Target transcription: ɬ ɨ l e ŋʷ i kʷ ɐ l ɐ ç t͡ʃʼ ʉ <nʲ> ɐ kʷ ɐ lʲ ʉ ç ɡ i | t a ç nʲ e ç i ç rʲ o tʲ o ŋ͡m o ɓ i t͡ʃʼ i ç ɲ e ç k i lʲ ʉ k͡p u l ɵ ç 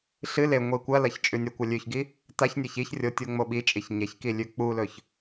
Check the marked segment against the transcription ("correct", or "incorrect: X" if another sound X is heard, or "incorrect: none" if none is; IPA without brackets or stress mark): correct